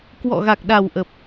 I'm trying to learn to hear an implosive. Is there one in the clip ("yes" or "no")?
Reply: yes